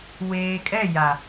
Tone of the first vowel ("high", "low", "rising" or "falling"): low